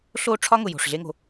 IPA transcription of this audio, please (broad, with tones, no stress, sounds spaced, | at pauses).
ɬ o˦˨ ʈ͡ʂʰ ɒ˦ ŋ ʊ˨ j o̤˨ ʂ ɮ e˦ ŋ o̤˧